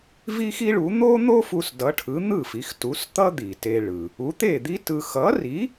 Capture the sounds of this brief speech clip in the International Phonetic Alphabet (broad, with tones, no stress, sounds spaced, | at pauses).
v i˥ x i˥ ɭ u˩˥ n̪ o˥ n̪ o˥ f u˧ s d ʌ˩˥ ʈʰ ɯ˩˥ n̪ ɯ˥˩ f i˩˥ x t u˩˥ s t̪ ʌ˥ d̪ i˩ t e˧ ɭ ɯ˩ | u˩˥ t̪ e˥˩ d̪ i˥ t ɯ˧ x ʌ˩˥ r i˩˥